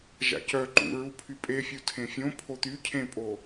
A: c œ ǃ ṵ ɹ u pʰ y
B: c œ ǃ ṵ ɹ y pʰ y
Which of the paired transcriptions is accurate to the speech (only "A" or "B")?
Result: A